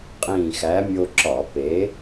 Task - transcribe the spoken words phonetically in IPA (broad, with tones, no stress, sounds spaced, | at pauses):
qʼ ĩː˧˩ x æ˨˥ mʲ o˧ ǁ ɒ˧˩˧ p eː˨˥